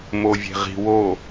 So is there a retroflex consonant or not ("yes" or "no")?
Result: no